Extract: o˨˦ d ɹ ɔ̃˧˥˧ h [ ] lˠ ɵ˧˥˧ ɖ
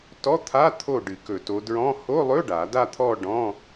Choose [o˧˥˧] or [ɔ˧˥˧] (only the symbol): o˧˥˧